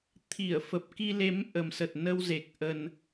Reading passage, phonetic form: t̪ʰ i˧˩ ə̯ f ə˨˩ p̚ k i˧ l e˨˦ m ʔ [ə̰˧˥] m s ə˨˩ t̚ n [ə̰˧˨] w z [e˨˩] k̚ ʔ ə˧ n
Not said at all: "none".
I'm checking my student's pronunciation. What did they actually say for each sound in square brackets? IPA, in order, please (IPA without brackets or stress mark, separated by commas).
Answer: ə˨˩, ə˧, e˨˩